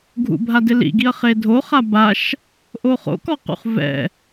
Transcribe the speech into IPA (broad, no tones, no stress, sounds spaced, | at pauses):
ɡʱ ṵ bʱ a d ɪ l ḭ ɡ i ɐ̯ χ e dʱ o χ a b a ʃ | ʔ o χ o̰ k ɔ q ṵ χ v ɛ̰